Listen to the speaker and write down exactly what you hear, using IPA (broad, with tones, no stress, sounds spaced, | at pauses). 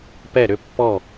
p ɛ˥˩ ɾ ʏ˥˧ pː ɔ˥˩